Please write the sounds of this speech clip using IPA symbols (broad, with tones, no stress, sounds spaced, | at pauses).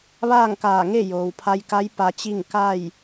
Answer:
ʋ aː˥˨ ŋ k aː˧˩ ŋ e˥˨ j oː˩ w pʰ a˧ j k a˧˥ j p a˧ t͡ɕ i˥˨ ŋ k a˥˨ j